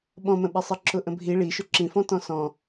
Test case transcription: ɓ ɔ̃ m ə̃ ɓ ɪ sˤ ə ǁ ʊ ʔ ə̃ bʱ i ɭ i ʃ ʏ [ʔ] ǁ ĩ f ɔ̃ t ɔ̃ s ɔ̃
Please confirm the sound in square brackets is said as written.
no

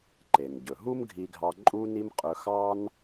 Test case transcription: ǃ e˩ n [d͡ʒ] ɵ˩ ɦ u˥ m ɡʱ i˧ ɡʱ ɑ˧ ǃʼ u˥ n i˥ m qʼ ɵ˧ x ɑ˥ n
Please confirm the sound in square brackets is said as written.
no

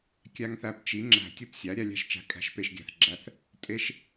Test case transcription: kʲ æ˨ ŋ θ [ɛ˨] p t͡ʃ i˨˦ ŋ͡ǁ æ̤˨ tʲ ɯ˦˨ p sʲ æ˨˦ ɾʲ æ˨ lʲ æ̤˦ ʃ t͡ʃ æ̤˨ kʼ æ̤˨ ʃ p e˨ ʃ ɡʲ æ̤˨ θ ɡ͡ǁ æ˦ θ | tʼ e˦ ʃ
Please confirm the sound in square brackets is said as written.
no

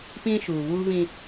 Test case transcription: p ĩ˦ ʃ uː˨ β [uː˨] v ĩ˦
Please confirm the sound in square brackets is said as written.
no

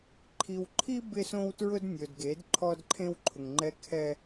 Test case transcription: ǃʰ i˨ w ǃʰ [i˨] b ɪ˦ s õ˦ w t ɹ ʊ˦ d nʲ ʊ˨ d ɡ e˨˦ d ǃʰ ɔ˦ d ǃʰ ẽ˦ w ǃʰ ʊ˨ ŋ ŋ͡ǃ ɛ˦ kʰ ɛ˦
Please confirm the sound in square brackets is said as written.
no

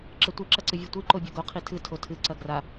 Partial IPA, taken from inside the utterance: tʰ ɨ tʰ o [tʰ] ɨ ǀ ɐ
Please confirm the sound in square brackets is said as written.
yes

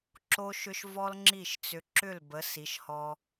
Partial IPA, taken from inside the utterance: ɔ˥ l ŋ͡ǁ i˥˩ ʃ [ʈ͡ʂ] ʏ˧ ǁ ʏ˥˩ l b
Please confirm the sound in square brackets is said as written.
no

